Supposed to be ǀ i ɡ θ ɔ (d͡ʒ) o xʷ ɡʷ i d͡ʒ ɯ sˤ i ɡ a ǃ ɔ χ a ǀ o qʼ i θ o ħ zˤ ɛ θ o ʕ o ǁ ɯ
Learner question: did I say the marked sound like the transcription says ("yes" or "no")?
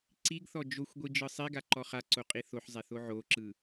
yes